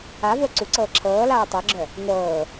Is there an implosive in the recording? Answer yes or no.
no